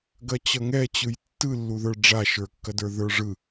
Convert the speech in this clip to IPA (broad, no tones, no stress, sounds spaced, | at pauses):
ɡ ɐ t͡ɕ ʌ ŋ ɛ t͡ɕ ɯ j tː ɯ lː u ð ə˞ ɖ͡ʐ a ʃ ə˞ kː ɐ d ə˞ ð ə˞ ʐ ɯ